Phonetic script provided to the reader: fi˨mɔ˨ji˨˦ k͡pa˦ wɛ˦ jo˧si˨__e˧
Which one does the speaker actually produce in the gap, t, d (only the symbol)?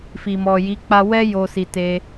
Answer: t